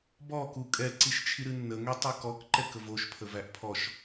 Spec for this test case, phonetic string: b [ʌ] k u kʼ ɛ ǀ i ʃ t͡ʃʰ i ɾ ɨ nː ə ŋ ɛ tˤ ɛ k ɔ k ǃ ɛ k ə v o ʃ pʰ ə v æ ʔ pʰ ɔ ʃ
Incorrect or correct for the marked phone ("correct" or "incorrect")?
incorrect